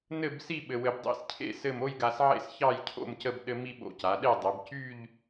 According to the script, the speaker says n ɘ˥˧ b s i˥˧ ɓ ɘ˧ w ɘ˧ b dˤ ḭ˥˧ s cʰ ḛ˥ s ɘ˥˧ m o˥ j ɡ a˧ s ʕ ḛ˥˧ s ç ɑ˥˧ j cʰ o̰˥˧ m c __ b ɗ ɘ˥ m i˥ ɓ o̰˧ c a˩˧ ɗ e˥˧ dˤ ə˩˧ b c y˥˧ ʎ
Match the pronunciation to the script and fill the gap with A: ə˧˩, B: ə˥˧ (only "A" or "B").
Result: B